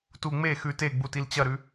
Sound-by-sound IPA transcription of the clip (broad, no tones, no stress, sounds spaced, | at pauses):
t u ŋ͡m e x ʉ t e ɡ͡b u t i l t͡ɕ ɐ ɾ ʉ